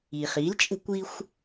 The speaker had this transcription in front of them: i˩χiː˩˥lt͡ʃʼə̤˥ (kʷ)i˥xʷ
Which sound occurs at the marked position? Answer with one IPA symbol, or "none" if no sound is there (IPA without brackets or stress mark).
kʷ